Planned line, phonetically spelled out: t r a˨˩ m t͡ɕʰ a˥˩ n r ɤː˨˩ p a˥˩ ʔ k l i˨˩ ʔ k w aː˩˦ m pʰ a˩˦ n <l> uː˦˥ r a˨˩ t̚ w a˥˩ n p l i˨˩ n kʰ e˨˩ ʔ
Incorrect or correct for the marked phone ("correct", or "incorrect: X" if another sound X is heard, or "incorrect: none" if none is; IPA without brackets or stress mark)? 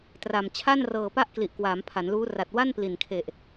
correct